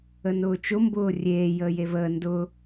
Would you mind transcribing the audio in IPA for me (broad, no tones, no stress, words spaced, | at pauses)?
ənʊːt͡ʃʊ mbʊːrʲeː jəːjevəː ndʊː